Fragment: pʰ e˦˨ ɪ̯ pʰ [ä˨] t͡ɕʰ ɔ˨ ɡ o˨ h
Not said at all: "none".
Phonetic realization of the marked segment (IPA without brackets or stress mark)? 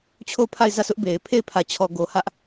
ä˨